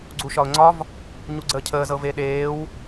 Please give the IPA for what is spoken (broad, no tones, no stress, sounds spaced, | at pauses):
ɡ͡ǀ u ʃ ɒ ʊ̯ ŋ͡ǀ ɒ v | ɲ u ɡ͡ǀ əː cʰ əː z ɤ v e ɗ eː w